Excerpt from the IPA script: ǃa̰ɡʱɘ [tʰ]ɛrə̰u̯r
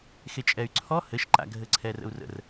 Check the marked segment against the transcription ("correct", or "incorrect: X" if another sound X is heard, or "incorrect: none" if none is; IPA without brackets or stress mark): incorrect: ǀʰ